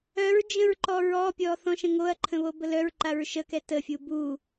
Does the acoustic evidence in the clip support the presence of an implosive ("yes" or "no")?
no